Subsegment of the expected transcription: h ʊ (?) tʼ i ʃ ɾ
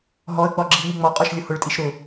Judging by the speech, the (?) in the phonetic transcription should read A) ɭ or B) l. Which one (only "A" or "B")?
A